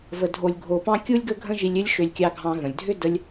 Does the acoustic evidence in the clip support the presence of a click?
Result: no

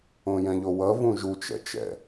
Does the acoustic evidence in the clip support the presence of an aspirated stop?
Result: no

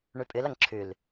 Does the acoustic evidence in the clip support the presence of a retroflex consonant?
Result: yes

